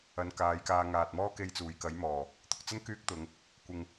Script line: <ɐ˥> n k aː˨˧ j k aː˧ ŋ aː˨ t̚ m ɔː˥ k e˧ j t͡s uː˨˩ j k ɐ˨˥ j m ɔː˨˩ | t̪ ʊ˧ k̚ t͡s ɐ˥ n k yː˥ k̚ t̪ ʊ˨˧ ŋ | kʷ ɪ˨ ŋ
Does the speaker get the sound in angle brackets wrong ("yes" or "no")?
yes